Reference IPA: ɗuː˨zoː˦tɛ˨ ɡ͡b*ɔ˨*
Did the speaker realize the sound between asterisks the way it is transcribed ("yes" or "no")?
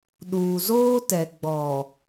yes